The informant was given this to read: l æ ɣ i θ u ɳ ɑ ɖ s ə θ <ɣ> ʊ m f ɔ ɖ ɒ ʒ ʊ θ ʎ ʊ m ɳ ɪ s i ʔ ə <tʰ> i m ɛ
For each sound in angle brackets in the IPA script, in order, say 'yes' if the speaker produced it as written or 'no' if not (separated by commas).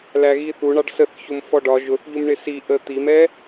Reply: no, no